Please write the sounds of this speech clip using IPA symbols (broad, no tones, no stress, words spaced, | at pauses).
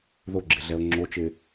ðoɡ͡ǁɪɮɛo̯ ŋ͡ǁot͡ʃɪː